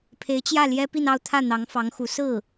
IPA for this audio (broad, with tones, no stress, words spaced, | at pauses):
pʰe˧˥ɪ̯t͡ɕjä˥˩ ljɛ˥pi˥˧nɑ˥˧ʊ̯t̪ʰä˥˩ n̪ɑ˧˥ŋfɑ˧˥ŋxu˧˥ sɹ̩˥˩